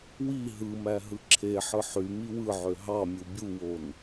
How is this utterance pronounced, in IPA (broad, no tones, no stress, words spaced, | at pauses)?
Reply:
wi ɦɯmæ ɦɯǁʰeħɯ ħy miwɯʕø ɦɑmʲu bʲuwon